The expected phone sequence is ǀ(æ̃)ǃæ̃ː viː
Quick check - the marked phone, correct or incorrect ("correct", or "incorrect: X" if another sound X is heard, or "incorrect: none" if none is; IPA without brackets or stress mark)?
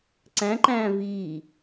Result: correct